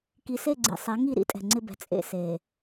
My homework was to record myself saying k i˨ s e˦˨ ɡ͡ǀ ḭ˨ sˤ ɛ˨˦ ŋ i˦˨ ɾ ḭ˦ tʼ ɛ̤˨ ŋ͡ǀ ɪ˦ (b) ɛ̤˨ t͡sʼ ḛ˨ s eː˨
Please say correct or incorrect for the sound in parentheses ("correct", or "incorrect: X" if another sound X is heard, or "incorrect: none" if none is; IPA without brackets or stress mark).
correct